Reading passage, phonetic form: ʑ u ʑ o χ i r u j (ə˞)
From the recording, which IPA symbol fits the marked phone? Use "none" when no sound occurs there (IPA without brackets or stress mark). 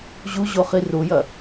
ɐ